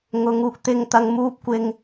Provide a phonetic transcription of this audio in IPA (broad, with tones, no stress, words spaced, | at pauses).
ŋʊ˨˧ŋ uː˨k̚t̪ɪ˧ŋt̪ɐ˧ŋ muː˥p̚kʷɪ˥ŋ